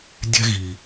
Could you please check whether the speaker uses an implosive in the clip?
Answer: no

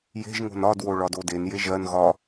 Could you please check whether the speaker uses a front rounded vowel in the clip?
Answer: no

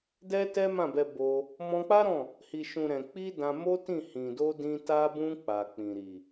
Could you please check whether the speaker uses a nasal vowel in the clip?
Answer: yes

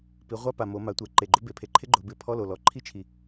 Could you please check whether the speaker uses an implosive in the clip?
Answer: no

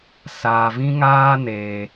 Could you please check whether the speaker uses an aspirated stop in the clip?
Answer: no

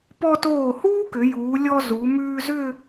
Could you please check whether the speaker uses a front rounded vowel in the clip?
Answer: yes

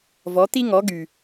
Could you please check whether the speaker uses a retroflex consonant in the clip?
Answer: no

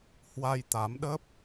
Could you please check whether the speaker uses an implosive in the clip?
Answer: yes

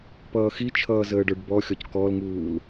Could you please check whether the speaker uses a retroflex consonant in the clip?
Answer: yes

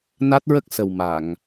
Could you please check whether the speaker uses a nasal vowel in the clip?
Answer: no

